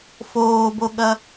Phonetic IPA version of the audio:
foːboɠɐ

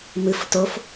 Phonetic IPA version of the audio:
mɨf tof

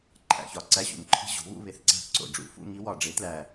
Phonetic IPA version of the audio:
ǃʰæ̰˧˩˧çɒ˨˩ ǀæ˧˥˧ɕṵ˧˩˧nǃʰi̤˧˥˧ ʑo̤˩˥βṵ˧˥˧ βe˧˩˧θǀæ̤˥˧θ ǀo̰˧˩˧ɖ͡ʐṵ˩˥ fṵ˥˧ŋi˦˥wɒ˧˩˧ ɖ͡ʐe˩˥tlæ˨˩

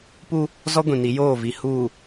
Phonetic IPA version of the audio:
pu˦ | zɔ˦ɡʷĩ˨ni˨˦ joː˦˨vi˨ huː˨

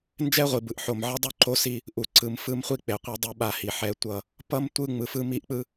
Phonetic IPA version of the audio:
nd͡ʒɛ˦ʁʷi˨bɯ˨ʔ ħo˨mʕʌ˦dˤu˦ǃo˦ si˦ | ʔu˨ ǀɯ˨mfɯ˦mχʷi˦ k͡pe˨qʷe˦dˤɯ˦ɓa˦˨ hi˨ħɛ˨˦ tʷʌ˦˨ | pʌ˦m tʷɯ˦ ŋ͡mɯ˨fɯ˦ mi˦ʔk͡pɯ˦

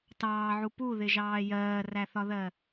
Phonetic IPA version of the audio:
tɑːʕu puðɪʒɑː jɜːræθɒðɜ

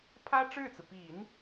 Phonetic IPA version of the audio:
pʰä˥ʈ͡ʂɻ̩˥˩t͡sɹ̩˩ pi˨˩˦n

